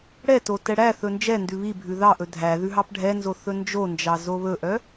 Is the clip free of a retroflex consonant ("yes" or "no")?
no